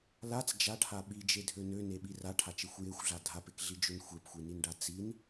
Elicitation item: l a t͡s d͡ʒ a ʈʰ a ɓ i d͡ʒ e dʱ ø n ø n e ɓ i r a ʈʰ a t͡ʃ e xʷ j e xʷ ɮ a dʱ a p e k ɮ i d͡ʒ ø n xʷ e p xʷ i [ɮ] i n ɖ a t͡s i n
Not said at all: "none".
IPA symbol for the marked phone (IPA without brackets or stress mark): n